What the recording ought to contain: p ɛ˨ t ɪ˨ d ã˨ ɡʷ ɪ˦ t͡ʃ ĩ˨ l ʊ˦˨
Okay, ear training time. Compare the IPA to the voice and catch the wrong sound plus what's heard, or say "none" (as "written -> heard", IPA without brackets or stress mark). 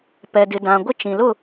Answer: t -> d